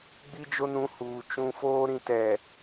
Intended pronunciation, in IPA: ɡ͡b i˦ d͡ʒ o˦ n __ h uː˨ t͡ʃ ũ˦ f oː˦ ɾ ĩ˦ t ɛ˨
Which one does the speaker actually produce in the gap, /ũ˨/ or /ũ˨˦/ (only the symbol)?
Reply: ũ˨˦